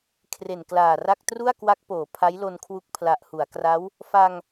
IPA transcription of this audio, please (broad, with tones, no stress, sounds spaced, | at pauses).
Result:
kʰ r e˨˩ n k l aː˨˩ r a˥˩ k̚ t r u˥˩ a̯ k w a˦˥ k̚ p oː˩˦ pʰ a˦˥ j l o˧ n kʰ w u˦˥ k̚ pʰ l a˨˩ ʔ h u˩˦ a̯ k r a˦˥ w | f a˧ ŋ